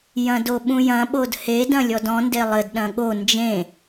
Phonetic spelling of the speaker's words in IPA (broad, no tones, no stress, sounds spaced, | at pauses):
j ɐ̃ d o ɓ ũ j ɐ̃ ɓ o d h e d ɐ̃ lʲ ɔ d ɔ̃ n d e lˠ ɘ d ɗ ɐ̃ ɠ o n d͡ʒ ẽ